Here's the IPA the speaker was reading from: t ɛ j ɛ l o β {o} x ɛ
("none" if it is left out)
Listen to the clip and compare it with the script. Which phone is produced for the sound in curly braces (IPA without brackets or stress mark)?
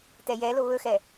ɵ